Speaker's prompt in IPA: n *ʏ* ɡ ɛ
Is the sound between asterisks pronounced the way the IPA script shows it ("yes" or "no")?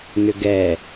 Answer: yes